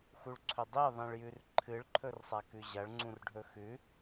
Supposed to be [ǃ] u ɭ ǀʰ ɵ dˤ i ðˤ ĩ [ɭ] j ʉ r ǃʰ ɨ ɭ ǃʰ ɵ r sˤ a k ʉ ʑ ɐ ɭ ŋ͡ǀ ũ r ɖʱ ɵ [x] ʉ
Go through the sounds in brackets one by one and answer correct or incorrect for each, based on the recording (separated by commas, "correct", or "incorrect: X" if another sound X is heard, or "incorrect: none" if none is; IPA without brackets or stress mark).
incorrect: x, correct, correct